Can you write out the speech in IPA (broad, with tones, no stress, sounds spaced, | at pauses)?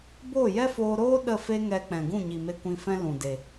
b oː˦˨ j ɛ˦ f oː˧ ɾ oː˦ ɗ ə˦˨ f e˦ ŋ ɛ˧ k͡p ɛ̃˨ ɡ ũ˦˨ ɲ i˨ m e˧ kʷ ĩ˧ f ɛ̃˦ l ũ˨ d e˨